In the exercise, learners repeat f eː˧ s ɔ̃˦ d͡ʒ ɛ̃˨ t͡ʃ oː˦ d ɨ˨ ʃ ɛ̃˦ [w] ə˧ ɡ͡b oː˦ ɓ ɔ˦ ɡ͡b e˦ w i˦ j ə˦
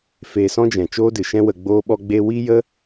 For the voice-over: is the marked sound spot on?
yes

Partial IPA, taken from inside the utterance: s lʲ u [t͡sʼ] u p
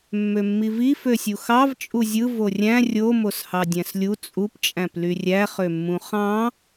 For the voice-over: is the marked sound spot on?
yes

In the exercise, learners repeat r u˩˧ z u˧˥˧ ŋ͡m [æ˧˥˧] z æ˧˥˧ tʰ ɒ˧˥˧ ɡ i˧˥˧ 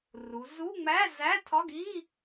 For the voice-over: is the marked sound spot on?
yes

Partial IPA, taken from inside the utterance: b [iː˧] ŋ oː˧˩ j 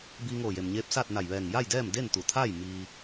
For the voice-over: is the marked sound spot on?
yes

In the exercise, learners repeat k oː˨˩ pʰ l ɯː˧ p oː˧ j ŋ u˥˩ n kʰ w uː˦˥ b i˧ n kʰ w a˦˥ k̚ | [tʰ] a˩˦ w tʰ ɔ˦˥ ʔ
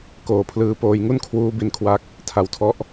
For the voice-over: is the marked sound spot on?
yes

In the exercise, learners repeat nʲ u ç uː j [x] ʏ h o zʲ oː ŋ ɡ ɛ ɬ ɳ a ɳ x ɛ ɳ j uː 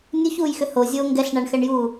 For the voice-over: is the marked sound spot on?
yes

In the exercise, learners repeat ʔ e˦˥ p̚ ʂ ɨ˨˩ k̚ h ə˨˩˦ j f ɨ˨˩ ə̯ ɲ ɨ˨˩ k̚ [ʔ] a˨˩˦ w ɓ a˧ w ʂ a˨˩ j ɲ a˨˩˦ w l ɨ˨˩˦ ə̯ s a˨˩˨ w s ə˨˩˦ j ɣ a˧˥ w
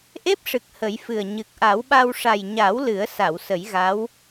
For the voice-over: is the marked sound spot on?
yes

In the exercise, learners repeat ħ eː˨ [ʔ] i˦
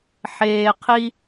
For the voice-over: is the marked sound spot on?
no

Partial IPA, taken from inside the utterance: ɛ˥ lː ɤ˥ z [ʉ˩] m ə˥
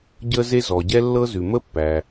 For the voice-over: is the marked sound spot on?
yes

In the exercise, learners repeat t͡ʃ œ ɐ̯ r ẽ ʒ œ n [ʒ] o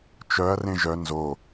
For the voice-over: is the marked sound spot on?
no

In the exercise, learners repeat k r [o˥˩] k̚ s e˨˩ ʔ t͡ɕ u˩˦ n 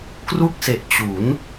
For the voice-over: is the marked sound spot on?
no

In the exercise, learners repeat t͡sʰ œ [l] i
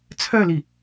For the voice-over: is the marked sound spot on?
yes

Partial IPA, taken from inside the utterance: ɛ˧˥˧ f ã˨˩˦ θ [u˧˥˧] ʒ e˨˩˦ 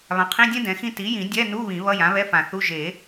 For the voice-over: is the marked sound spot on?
yes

